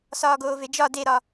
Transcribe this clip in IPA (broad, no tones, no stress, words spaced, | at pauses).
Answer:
sɒːɡoːved͡ʒɒ deɾɒ